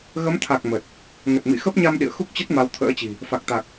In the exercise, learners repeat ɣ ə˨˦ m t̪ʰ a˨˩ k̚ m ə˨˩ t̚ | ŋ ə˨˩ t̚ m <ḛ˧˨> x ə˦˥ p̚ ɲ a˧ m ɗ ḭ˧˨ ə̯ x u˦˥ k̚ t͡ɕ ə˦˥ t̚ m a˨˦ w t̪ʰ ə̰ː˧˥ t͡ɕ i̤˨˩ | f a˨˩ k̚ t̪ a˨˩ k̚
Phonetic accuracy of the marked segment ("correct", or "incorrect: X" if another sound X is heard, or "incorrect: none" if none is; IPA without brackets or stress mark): incorrect: ḭ˧˨